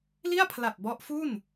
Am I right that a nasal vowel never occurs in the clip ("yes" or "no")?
yes